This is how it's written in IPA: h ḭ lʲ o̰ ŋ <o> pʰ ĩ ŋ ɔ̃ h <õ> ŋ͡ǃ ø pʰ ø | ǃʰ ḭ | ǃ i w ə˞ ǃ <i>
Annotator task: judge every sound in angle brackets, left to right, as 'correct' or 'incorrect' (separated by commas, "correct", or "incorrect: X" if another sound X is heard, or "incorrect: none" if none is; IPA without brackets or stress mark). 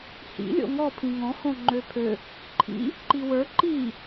incorrect: ɔ, correct, correct